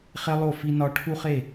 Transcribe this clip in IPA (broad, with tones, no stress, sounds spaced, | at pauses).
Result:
χ e˦ lˠ o˦˨ f i˦ n ɒ˦ ʈʰ u˦ χ e˦˨